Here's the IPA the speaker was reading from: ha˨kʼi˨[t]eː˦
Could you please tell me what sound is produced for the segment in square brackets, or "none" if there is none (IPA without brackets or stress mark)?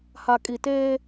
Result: t